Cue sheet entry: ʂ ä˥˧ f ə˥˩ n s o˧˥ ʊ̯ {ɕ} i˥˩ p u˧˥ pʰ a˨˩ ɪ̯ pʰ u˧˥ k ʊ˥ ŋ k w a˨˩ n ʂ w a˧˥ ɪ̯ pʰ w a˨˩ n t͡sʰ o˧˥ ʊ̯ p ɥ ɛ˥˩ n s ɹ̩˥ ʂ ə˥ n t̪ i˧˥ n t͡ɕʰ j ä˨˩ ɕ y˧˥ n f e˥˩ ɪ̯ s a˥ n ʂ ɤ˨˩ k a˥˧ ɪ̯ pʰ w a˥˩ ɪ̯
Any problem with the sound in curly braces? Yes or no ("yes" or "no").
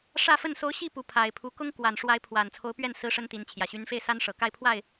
no